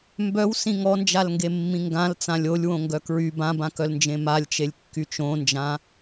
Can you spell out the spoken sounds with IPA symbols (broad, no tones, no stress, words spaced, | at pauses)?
mbœwsĩ ŋɔnd͡ʒalŋɡemːĩ ŋɡãlt͡sã lʲolʲwõŋɡœ kɹy bãbãkœlnd͡ʒẽ malʲt͡ʃelʲkːy t͡ʃõnd͡ʒã